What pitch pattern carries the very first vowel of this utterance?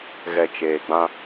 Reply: low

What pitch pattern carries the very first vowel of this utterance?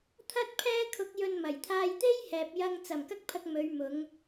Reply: high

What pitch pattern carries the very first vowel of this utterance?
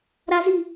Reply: high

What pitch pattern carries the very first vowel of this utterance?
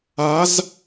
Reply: rising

